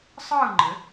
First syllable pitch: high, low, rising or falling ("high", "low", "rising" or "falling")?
falling